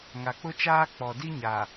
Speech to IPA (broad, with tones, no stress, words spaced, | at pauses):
ŋa˨k͡pʊ˦t͡ʃaː˦ k͡pɔ˨di˦ɲa˨